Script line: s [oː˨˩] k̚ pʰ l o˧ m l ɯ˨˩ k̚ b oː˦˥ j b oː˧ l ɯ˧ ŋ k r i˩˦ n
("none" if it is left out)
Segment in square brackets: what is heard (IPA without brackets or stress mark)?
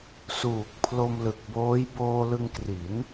uː˨˩